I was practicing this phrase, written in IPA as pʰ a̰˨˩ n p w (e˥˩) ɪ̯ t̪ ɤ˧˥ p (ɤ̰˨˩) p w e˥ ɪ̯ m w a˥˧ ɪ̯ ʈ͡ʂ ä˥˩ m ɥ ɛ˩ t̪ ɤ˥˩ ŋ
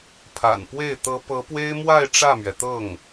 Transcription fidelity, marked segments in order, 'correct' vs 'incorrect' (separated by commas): correct, incorrect